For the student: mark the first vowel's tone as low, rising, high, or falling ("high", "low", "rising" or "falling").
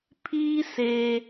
high